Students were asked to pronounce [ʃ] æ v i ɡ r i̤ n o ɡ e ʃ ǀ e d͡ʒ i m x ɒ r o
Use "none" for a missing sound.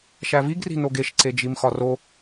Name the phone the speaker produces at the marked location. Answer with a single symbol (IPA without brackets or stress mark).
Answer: ʃ